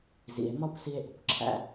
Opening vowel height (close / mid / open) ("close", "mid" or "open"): close